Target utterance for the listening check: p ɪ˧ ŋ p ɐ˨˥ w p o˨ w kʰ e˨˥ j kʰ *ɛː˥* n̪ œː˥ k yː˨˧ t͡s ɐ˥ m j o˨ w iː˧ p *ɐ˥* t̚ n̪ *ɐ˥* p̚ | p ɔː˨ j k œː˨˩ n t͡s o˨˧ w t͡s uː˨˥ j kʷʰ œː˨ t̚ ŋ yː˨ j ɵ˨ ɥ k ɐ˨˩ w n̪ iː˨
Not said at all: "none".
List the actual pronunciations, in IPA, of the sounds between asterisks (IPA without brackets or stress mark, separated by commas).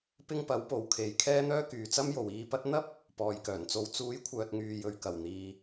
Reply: ɛː˥, ɐ˥, ɐ˥